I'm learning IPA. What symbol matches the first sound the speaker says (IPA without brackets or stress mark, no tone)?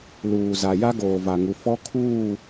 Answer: l